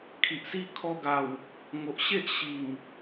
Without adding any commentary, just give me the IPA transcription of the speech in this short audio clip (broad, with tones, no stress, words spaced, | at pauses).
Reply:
kʰi˨ʔsi˦ kʰɔ˧ɡa˨˩w | ŋo˨ʔɕe˦ʔ ɕi˨˩ŋ